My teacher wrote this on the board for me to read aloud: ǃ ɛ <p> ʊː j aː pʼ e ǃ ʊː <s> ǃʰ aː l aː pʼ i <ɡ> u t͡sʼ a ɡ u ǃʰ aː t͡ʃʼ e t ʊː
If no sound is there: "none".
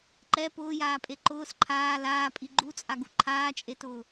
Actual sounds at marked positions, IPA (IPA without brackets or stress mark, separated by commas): p, s, ɡ͡ǃ